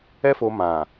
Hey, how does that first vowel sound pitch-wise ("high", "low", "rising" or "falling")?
high